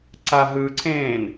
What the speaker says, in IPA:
ǀ a ɦ ɯ ǀʰ ẽː n

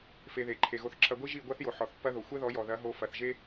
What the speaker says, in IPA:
f e˧ ð e˨ ǃʰ e˨ ɣ o˧ θ ǁʰ ɐ˧ ɡʷ i˦ ʒ i˦˨ ɡʷ a˦ θ j o˨ ħ ɔ˨ θ pː ɐ˦ ð o˨ xʷ ɛ˦ ð ɔ˨˦ j ɔ˨ ð ɐ˨˦ ɦ o˧ f ɐ˨ θ ʒ e˦

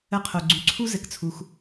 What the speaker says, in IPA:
ə˨˦ qʰ o˩ ɡ͡ǀ y˩ ǀʰ u˦ z ɘ˩ k t͡sʰ u˩ x

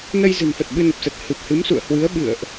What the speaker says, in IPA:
n ə˧ j z ɨ̤˨˩ n f ə˨˩ t̚ ɓ ɨ˧ n ə˨˩ p̚ s ə˨˩ t̚ h ɨ˨˩ p̚ h ɨ˨˦ m s ṵ˧˨ ə̯ h w ɨ˨˦ ə̯ ɓ ɨ̰˧˨ ə̯ ʔ

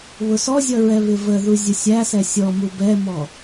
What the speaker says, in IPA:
β ʊ s ɔ zʲ ʌ ɹ ɛ β ɪ v ə ð u zʲ ʊ sʲ æ s ɛ sʲ ɔ m u b ɛ m ɔ

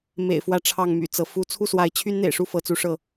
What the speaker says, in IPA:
m ḛ˨˩ ɪ̯ f w ä˨˦ ʈ͡ʂʰ ɑ˥˨ ŋ m y̰˨˩ t͡s ɤ˨˦ f u˦ t͡sʰ u˥˨ s w a˨˦ ɪ̯ t͡ɕʰ y˦ n n̪ ḛ˨˩ ɪ̯ ʂ u˥˨ f ɤ˨˦ t͡s u˨˦ ʂ ɤ˥˨

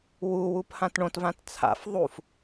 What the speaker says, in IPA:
w u w u p h ã t ɳ õ t v ã t t͡sʰ a̰ f ðˤ u f

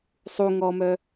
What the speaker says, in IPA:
sˤ u ŋ ɔ m œ

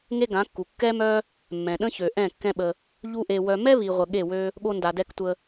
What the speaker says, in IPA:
ŋ e˦ ɡ ã˨˦ kː u˨ kː ɛ˦ m œ˦ | mː ɛ̃˨ ɗ ə̃˦ ç ø˨ ʔ ɛ̃˦˨ kː ɛ̃˦ ɓ ə˧ | ʎ u˦ ʔ e˧ w œ˧ m ɛ˦ β i˨ ʁʷ ə˨ ɠ e˦˨ w ø˦ | ɠ o˦ n d a˧ d ɛ˦ k tʷ ə˧

